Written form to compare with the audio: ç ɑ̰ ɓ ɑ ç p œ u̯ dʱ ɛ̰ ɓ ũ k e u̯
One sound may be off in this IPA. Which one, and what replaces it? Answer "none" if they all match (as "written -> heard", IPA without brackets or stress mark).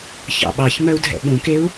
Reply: p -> m